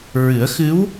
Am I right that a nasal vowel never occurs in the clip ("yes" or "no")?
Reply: yes